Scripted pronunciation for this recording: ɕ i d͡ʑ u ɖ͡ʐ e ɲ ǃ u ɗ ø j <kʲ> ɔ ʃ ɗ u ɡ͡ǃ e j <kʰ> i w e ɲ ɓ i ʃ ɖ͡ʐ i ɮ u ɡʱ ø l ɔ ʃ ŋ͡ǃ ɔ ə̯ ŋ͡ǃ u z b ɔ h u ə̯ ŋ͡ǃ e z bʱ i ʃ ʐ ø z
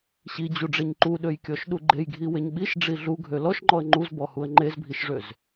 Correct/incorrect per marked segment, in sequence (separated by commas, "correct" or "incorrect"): correct, incorrect